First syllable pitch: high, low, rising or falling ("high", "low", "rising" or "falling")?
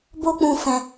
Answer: high